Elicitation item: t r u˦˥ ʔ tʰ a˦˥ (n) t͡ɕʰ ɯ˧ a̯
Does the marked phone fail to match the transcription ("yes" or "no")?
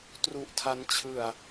no